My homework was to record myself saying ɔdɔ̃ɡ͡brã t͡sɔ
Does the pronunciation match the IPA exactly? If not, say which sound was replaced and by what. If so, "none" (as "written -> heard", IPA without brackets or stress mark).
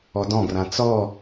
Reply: ɡ͡b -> ɡ